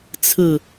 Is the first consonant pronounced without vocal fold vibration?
yes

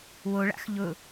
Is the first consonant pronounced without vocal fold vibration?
no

